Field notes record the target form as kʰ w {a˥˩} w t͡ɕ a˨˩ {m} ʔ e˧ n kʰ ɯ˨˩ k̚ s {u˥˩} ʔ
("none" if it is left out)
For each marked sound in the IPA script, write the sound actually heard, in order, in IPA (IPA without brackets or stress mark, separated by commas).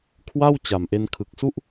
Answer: a˥˩, m, u˥˩